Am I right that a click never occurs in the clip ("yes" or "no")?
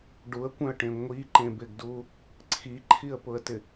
no